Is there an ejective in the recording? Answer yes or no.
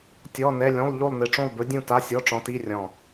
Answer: no